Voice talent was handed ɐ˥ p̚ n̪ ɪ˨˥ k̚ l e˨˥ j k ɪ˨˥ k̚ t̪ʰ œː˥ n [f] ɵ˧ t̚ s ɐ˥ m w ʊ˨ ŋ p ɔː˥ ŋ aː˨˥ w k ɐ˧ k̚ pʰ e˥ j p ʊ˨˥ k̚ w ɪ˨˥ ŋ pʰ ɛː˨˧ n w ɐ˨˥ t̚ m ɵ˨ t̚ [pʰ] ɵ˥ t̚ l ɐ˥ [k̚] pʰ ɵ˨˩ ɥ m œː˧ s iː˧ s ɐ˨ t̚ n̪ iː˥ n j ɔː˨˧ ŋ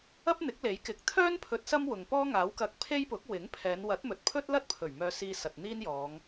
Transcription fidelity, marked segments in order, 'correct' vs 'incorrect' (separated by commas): incorrect, correct, incorrect